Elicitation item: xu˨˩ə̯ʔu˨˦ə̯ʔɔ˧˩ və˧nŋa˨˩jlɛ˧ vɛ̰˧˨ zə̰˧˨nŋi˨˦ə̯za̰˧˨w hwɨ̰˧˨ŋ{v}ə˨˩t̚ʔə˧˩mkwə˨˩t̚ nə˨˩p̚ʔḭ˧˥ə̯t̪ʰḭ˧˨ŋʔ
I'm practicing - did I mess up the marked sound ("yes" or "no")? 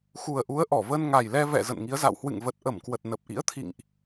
no